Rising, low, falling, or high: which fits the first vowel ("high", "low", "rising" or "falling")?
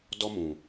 high